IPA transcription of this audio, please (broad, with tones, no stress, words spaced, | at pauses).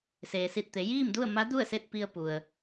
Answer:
seː˩si˧˩t̚t̪e˩˧ jiː˥˨mdu˥˨ə̯ ma˧˥ du˥˨ə̯se˥˨t̚pi˧ə̯ pu˩ə̯